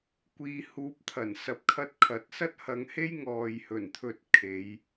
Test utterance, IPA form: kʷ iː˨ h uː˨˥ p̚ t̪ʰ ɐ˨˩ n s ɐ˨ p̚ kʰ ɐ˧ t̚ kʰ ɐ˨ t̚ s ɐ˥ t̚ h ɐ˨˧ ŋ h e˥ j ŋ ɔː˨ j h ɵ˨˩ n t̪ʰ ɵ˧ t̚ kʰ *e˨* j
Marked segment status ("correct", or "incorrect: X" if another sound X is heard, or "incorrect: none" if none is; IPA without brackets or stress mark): incorrect: e˨˧